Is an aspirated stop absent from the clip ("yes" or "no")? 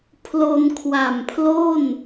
no